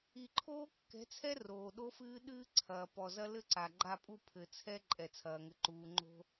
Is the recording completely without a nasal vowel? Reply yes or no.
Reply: yes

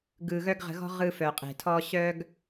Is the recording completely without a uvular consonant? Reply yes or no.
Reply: no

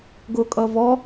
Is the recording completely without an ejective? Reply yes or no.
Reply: no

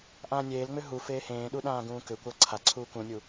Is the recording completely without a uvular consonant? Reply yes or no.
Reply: yes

